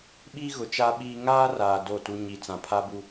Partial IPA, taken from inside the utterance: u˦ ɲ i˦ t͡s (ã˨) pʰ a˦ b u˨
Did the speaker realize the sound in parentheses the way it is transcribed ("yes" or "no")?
yes